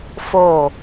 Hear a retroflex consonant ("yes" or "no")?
no